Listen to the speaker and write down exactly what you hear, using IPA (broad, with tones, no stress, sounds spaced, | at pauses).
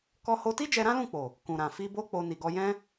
k ɔ˧ h o˧ t i˦ d͡ʒ ɛ˧ ɾ ã˦ l ũ˦˨ k͡p o˨ | k ũ˨ ɾ ã˨ f i˧ b o˦ k͡p o˦ n i˧ ɡ ɔ˦ j ɛ̃˦